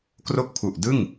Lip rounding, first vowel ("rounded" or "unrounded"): rounded